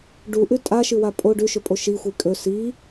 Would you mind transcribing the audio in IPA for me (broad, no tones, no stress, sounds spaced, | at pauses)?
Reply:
ɖ u ʔ ʉ tʼ a ʃ ɨ w a pʼ o ɖ ʉ ʃ ɵ pʼ o ʃ i xʷ i kʼ ɵ s i